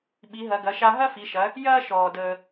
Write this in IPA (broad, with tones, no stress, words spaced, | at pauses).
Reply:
ɓi˩˧ɦɐ˩˧ɡɐ˩˧ʃa˧ ɦɐ˥fi˩˧ʃɐ˩˧ | jɐː˥ʃɔː˩ dəː˩